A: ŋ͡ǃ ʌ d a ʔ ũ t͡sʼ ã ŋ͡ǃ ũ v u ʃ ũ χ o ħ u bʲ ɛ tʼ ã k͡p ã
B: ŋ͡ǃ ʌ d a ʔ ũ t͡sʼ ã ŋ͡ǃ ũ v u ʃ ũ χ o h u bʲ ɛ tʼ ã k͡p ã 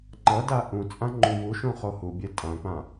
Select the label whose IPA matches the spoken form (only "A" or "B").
B